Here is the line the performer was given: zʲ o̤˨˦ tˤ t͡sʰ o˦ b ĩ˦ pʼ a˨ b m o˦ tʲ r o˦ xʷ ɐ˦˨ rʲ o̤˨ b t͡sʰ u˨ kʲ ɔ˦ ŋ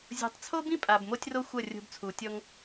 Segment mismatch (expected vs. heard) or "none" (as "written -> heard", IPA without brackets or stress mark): kʲ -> tʲ